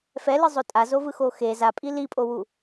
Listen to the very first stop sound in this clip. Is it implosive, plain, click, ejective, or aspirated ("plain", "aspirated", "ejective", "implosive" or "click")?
ejective